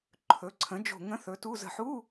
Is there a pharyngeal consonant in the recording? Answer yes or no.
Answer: yes